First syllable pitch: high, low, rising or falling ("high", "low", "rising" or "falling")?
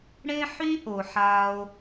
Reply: high